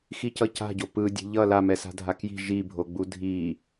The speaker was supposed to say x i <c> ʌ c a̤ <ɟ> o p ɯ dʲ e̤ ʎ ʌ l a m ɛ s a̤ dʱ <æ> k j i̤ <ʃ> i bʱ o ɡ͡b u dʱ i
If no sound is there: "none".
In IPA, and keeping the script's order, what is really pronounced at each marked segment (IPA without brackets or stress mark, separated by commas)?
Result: c, ɟ, a, ʒ